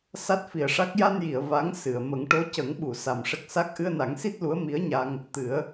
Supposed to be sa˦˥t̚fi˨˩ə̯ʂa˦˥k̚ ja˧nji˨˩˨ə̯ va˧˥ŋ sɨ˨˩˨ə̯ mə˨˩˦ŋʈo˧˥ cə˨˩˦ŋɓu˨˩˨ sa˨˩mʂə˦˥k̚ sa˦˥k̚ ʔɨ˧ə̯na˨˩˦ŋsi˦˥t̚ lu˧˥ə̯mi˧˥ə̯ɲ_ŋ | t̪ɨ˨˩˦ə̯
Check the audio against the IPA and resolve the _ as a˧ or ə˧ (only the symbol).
a˧